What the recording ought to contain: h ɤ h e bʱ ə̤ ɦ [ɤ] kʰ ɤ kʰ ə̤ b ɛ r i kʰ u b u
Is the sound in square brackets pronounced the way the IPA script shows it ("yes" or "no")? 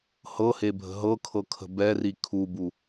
yes